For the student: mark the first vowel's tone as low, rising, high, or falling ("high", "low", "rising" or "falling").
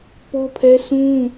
high